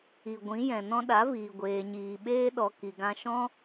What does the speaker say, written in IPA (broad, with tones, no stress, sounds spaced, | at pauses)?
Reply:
i˨ ɡʷ ĩ˨˦ j ɛ̃˨ n ɔ̃˧ ɗ a˨˦ v iː˨ ɡʷ eː˨ ɲ iː˨ ɓ eː˦ ɗ ɔ˧ k i˧ ɡ ã˦ ʃ ɔ̃˦